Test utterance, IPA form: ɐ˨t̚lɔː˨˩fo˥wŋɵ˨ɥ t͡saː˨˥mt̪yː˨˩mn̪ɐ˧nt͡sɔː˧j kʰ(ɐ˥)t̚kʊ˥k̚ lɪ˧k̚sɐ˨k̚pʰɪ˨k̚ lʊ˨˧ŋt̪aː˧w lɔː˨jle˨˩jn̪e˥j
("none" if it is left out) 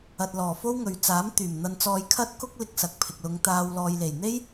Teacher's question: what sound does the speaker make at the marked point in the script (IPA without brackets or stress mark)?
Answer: ɐ˥